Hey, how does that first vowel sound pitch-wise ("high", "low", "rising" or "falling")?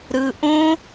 low